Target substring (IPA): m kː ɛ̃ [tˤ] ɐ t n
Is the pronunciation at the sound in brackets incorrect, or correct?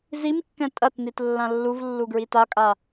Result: incorrect